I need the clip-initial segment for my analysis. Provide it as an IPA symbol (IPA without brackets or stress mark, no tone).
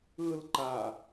ɯ